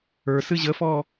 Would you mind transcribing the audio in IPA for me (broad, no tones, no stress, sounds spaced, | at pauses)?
ə˞ s ɨ ʑ ə f ɔ